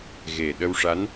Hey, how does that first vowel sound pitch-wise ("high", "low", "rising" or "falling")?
low